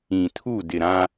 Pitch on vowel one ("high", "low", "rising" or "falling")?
low